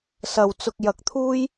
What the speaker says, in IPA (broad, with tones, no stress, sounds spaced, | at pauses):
s ɐ˨ w t͡s ʊ˧ k̚ j ɐ˧ k̚ t̪ʰ uː˥ j